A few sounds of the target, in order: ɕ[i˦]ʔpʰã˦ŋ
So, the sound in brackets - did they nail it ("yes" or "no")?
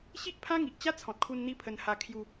yes